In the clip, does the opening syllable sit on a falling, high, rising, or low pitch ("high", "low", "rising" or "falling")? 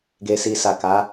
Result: low